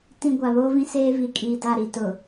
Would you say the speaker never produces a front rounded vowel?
yes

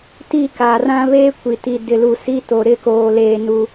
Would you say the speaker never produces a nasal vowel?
no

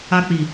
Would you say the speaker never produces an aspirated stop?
yes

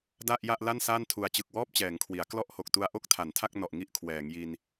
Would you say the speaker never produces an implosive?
yes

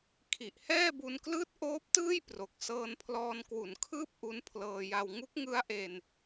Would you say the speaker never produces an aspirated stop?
no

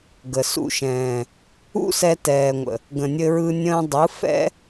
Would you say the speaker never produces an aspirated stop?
yes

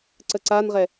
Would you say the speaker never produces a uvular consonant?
no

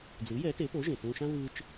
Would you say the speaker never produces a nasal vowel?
no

